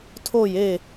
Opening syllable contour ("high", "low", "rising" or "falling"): falling